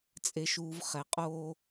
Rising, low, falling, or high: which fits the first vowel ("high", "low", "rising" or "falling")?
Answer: low